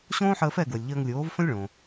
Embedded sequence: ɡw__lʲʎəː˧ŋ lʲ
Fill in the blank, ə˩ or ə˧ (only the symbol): ə˩